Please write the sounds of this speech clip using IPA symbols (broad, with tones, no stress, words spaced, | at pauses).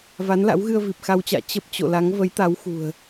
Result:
va˨˦nla̰˧˥wɣɨ˧ə̯ vi˨˩p̚xa˧wt͡ɕa̰ː˧˨ t͡ɕə˦˥p̚ t͡ɕo̰˧˨la˨˦ŋ və˨˦jt̪a˨˦wxṳ˨˩ə̯